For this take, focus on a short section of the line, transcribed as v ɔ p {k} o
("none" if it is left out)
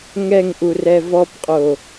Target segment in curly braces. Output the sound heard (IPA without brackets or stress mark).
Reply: qʼ